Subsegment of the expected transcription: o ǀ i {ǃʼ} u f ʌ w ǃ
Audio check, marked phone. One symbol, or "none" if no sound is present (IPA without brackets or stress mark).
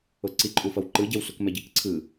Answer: ǃʼ